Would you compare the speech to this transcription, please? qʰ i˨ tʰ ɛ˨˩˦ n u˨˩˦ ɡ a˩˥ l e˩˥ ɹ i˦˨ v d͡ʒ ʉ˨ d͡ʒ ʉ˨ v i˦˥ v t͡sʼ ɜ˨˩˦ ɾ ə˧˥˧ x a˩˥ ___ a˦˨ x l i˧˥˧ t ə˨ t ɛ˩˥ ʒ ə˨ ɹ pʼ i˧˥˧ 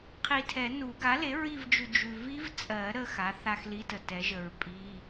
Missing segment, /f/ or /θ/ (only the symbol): θ